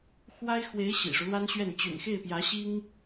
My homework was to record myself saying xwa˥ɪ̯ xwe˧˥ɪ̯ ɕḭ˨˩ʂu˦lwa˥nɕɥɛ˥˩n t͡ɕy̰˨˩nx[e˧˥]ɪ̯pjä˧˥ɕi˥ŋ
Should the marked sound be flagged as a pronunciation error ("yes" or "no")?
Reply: yes